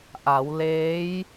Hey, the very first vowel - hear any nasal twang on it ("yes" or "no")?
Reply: no